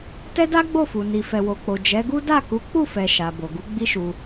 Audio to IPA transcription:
tɛ˦da˦ɡ͡bo˦˨fu˨ ni˨fɛ˨wo˨k͡po˨ d͡ʒɛ˨˦ɡu˦ da˦˨ku˨˦ k͡pu˦˨fɛ˨ ʃa˨bo˨ɡu˨˦ ɡ͡bi˦ʃu˧

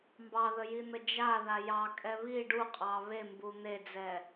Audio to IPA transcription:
mbɑðəjin̪ə d͡ʒaða jɑkʼɛ βi ɖuqʼɑ βembu n̪ed͡zɛ

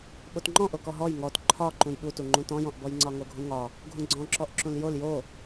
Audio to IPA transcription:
ɓotŋ͡ǃɔ̃ʔo kɔɦɔj ŋɔt ǃʰɒ ǃũjɓutuŋ͡ǃũ tɔ̃jɔ̃ʔbɔj ŋ͡ǀɒŋoɡʱũŋɒ | ɡʱũɡ͡ǀɔ̃ǁɔʔǁũl jol jo

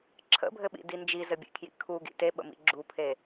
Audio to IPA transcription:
ǁʰə̰bʱɘɓḭdi nd͡ʒizɘbʲḛkʰjḭ kʰuɡḭ teɓə̰mḭ ɡ͡ǁupʰe

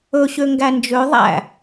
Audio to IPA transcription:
ɵɕø ŋɡænd͡ʒø ðˤæ̰

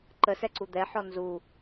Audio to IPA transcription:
ǃəsɛǀu d̪ɛħɔ nzu

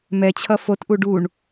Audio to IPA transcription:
mɛt͡ɕʰʌ fotʔu ɖuɳ

